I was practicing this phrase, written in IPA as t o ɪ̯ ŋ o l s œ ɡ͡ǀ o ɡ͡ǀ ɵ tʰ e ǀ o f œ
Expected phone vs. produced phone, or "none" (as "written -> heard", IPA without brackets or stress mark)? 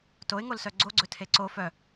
none